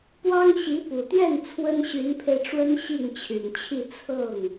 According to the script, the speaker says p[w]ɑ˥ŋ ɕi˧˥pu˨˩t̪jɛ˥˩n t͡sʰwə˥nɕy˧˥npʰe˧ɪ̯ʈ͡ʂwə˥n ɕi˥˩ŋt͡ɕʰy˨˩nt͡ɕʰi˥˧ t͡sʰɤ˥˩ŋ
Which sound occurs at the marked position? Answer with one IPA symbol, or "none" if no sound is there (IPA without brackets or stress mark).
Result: w